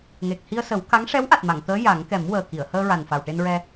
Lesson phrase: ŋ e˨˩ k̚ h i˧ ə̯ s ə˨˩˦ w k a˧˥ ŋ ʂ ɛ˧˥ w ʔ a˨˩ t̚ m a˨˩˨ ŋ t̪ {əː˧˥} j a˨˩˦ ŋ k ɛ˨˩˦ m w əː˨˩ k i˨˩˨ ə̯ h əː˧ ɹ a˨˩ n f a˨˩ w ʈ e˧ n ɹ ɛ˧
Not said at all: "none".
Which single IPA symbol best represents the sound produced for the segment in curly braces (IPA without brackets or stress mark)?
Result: əː˧˥